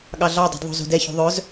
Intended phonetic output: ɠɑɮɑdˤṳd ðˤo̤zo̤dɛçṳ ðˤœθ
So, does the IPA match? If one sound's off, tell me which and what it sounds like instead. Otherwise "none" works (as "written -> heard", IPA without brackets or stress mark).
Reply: θ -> z